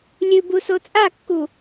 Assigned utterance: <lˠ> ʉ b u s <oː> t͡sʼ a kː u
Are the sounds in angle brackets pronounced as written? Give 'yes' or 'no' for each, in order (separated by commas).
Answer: no, no